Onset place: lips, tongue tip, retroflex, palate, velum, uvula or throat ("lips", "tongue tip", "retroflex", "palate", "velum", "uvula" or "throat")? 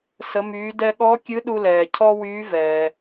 tongue tip